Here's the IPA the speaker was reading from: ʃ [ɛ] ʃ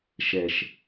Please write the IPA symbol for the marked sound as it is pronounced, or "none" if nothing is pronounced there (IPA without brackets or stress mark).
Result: ɛ